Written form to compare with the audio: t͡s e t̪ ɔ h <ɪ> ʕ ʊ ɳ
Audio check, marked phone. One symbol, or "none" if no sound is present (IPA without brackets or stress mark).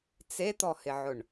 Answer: ɪ